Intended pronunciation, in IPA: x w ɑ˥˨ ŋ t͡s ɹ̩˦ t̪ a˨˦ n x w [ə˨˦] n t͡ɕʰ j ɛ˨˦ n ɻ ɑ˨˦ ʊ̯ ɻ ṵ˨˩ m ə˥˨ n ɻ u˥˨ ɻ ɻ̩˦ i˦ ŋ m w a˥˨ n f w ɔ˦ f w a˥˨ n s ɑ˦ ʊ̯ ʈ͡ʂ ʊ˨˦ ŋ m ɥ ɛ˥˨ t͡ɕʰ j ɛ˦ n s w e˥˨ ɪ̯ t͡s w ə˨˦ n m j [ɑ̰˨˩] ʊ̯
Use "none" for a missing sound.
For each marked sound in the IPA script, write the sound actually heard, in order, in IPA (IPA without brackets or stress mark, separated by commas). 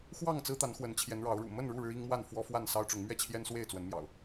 ə˨˦, ɑ̰˨˩